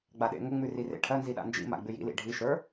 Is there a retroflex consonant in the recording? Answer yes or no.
yes